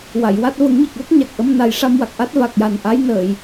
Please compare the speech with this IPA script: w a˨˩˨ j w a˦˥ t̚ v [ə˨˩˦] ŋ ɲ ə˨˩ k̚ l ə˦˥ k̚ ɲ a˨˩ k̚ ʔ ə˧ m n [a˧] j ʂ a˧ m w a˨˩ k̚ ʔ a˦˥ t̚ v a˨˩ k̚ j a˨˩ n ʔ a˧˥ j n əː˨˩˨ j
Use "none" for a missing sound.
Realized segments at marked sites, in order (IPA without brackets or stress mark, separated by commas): ə˨˩˦, a˨˩